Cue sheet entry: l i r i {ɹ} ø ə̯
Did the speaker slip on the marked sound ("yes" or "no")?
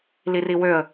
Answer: yes